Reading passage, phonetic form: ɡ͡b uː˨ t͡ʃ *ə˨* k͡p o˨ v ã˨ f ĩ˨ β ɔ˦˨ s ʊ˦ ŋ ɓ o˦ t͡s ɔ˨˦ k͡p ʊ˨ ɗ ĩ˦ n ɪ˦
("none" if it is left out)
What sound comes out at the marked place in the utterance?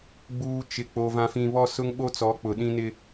ɪ˨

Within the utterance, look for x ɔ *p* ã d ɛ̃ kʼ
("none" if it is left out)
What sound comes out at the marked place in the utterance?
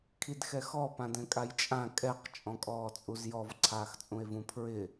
p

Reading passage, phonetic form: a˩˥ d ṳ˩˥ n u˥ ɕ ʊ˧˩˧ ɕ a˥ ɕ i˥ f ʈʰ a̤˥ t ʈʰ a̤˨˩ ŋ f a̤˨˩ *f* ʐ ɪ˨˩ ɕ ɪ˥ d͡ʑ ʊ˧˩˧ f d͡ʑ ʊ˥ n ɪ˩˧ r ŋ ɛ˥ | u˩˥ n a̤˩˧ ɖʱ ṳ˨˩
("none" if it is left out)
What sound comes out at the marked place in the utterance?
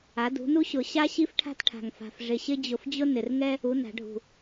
f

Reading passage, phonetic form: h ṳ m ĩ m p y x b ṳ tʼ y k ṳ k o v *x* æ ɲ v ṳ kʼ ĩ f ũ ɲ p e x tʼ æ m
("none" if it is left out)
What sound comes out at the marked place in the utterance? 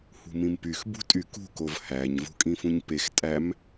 h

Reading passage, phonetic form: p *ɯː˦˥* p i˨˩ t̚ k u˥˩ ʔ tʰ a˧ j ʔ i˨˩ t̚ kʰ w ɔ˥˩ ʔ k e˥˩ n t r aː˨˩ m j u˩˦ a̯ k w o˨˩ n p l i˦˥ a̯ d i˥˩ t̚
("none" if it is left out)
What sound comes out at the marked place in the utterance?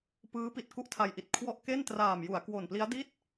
ɯː˦˥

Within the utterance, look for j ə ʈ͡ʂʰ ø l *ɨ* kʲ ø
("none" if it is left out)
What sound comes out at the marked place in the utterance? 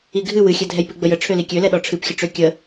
i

